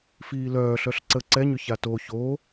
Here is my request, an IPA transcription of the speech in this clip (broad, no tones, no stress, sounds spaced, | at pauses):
f iː l œː ɬ œ ɬ ǀ ə ǀ ɛ ɲ ʏ ç a t o ç o